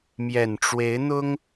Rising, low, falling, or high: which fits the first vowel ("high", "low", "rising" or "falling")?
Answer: low